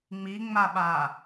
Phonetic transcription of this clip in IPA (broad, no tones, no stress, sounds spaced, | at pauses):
ŋ͡m i ŋ͡m a ɓ a